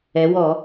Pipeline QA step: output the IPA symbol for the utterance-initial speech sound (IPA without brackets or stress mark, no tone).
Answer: ɛ